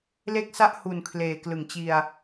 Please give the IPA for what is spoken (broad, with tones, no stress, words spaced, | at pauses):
le˥˩k̚sa˥˩ʔhu˨˩n kʰleː˨˩klɯ˩˦ŋt͡ɕi˧a̯